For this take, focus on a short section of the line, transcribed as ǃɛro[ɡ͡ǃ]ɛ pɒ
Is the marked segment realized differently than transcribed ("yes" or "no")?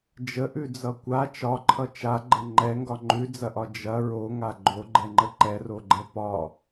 no